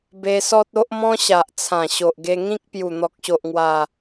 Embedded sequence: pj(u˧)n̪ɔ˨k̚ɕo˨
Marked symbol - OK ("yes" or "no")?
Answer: no